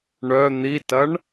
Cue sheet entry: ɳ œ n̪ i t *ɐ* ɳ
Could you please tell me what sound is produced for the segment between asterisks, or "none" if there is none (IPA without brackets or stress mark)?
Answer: ɐ